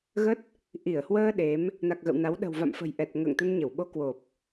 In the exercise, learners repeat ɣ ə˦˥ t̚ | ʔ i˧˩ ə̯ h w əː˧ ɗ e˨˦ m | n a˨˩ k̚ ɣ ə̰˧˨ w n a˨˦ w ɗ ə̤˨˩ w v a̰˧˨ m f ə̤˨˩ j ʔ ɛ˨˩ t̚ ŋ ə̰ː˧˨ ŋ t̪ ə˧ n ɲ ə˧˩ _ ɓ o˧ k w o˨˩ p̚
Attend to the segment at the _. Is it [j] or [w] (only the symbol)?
w